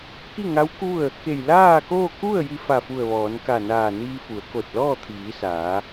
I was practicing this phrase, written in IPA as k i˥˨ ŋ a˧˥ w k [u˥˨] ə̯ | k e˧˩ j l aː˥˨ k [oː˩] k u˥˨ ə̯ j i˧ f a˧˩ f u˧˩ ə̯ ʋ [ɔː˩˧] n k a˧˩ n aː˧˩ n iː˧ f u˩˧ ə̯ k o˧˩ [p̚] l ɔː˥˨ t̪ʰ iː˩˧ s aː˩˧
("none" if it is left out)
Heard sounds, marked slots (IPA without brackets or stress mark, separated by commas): u˥˨, oː˥˨, ɔː˩˧, t̚